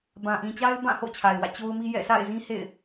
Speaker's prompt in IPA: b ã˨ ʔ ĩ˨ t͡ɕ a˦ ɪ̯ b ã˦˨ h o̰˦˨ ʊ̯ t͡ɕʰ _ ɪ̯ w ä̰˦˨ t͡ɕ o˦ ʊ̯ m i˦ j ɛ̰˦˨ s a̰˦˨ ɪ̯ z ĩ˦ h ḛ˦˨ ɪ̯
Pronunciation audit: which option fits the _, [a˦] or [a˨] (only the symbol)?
a˨